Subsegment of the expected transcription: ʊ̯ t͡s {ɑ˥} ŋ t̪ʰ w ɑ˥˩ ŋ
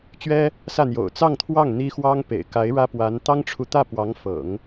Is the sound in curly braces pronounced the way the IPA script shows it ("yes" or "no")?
no